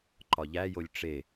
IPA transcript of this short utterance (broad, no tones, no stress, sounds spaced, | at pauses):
ǃ ɒ ʎ æ j o lʲ ʈ͡ʂ e